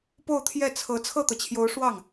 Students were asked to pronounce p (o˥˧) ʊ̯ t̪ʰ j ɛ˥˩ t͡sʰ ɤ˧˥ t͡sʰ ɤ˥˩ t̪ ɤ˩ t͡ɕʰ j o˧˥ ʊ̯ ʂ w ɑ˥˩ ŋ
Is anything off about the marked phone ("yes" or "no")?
no